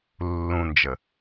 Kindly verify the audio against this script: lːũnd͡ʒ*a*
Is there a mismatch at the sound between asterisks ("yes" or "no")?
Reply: yes